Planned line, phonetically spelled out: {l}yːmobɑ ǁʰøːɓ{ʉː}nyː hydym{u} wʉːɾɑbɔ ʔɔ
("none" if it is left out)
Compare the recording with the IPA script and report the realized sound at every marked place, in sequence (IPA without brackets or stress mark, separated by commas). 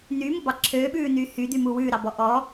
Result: n, ʉː, u